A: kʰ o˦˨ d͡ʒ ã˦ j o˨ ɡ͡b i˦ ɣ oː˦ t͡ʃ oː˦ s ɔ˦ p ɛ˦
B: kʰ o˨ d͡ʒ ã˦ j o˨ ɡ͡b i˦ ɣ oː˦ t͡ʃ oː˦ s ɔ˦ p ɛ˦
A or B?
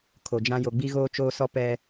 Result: B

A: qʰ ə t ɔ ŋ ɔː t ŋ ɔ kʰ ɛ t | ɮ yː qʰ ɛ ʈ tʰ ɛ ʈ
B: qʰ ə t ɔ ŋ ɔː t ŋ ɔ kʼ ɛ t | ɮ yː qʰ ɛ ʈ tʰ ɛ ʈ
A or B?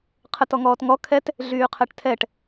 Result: A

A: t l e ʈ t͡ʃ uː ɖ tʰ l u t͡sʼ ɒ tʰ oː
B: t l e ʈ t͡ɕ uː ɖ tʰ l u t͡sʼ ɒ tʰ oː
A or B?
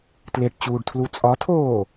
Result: B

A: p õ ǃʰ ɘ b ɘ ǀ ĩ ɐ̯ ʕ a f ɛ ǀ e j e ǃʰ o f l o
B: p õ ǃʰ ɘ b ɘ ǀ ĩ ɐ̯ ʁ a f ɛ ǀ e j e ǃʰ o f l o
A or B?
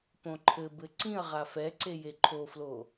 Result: B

